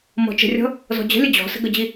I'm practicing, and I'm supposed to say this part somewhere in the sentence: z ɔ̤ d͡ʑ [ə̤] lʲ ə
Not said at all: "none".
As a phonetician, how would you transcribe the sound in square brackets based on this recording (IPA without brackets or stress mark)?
ə̤